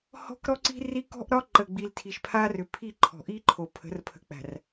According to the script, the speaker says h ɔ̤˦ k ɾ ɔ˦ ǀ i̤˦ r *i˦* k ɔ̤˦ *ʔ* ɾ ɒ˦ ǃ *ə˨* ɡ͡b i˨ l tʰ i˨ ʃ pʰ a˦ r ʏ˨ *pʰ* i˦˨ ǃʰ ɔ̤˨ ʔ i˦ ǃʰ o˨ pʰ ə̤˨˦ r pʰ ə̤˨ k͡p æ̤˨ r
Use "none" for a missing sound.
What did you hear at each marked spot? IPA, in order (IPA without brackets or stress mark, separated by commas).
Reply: i˦, ʔ, ə˨, pʰ